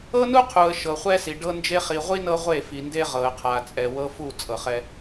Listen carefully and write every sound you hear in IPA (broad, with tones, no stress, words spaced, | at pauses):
ɤ˦nu˦qʰu˨ə̯ ʃɤ˨χʷɛ˦si˨ ɖɤ˦nd͡ʒe˦ χi˨ʁʷi˦ nɤ˦ ʁʷe˦˨fi˨nde˦ ʁɤ˨ə̯qʰa˨t͡sʼɛ˨ wɤ˦fu˦˨ t͡sʼɤ˨χɛ˦